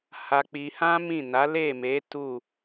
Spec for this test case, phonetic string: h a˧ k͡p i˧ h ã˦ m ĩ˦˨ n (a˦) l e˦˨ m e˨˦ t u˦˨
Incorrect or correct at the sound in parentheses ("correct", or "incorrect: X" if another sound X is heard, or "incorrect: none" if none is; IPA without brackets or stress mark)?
incorrect: a˨˦